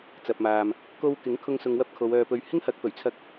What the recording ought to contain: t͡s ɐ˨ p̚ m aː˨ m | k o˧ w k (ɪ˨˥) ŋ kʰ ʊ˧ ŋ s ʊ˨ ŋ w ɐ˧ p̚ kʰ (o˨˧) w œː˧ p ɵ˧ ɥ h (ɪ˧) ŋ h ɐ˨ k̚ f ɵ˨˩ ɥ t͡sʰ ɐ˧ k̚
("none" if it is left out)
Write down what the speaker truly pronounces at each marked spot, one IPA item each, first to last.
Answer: ɪ˨˥, o˨˧, ɪ˥

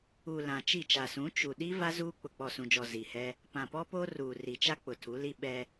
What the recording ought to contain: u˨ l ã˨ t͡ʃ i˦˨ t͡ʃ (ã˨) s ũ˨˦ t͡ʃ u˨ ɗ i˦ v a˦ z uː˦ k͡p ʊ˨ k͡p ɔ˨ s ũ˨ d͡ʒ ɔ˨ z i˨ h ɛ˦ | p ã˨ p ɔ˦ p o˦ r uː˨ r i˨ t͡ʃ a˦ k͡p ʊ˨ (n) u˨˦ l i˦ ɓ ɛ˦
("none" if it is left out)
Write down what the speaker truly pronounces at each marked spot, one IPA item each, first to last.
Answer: a˨, tʰ

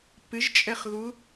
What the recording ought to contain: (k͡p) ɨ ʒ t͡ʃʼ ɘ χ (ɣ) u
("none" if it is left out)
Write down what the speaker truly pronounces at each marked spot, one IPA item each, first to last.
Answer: p, ɣ

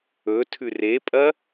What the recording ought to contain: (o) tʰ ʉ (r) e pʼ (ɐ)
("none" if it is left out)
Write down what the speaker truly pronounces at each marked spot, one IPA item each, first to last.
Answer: ɵ, r, ɐ

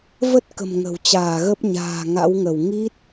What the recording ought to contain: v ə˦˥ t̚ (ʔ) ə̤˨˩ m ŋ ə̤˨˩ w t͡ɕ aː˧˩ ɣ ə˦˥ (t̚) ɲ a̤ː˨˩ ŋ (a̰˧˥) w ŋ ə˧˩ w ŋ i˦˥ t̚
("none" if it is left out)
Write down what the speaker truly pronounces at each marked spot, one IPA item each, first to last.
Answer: k, p̚, a̰˧˥

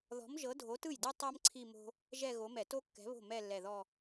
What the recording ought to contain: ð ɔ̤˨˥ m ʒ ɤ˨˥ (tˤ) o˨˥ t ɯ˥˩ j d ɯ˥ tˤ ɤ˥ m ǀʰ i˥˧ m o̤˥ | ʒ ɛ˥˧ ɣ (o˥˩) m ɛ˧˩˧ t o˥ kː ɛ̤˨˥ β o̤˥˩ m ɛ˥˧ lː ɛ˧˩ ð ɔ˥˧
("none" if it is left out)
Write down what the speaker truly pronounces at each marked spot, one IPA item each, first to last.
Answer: dʱ, o˨˥

